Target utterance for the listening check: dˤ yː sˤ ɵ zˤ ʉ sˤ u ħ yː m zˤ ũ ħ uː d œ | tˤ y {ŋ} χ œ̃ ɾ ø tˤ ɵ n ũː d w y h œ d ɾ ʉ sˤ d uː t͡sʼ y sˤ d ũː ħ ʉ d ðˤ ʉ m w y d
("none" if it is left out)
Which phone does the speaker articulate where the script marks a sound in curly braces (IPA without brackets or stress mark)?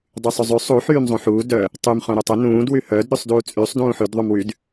m